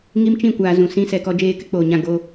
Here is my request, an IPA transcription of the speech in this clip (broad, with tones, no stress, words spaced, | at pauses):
ŋi˦mt͡ʃĩ˦˨ kʷaː˨ zũ˨ sĩ˦sɛ˨kɔ˦ d͡ʒeː˦kɪ˦k͡poː˨ɲã˦˨ ɡoː˦